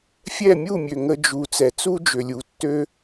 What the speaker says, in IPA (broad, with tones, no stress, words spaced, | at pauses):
fʲɛ˦˨mʲu˦˨mʲø˨ ŋə˧d͡ʒu˨ t͡sɛ˨t͡su˦d͡ʒø˨lʲu˨ tːø˦